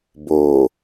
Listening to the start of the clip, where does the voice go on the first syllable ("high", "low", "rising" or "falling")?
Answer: low